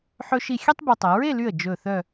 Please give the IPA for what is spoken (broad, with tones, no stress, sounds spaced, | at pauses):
ħ ɵ˧ ʃ i˧˩ xʲ ɛ˥ tˤ b o˧ tˤ ɛ˩˧ ɹ e˥˧ l y˧˩ ə̯ d͡ʒ ɵ˧˩ θ œ˥˧